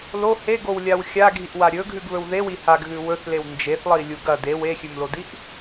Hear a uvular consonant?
no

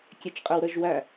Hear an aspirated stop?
no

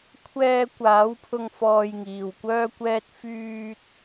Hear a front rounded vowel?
yes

